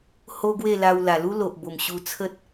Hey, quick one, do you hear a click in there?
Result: no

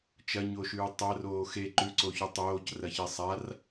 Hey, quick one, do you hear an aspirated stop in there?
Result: no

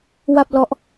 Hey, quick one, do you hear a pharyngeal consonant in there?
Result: no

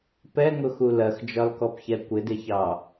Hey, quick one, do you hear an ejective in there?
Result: no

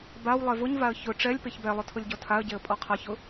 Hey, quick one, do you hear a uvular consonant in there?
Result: yes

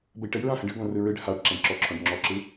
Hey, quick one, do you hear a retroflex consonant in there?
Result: yes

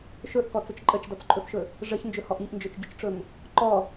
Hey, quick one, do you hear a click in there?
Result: yes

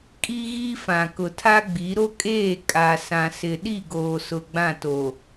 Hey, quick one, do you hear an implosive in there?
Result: yes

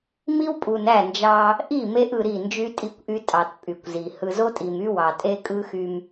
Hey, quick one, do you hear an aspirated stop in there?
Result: no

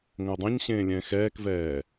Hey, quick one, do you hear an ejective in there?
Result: no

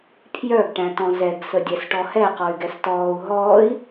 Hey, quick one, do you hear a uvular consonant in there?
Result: yes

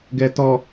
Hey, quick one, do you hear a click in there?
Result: no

